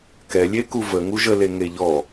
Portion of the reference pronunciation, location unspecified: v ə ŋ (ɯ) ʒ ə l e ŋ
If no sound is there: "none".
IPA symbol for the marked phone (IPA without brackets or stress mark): u